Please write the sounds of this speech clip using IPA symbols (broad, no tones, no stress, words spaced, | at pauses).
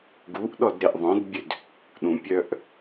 ɡuʔɗɔd ɾeʔðˤœ̃dbʲød | ɗũpʲœʔ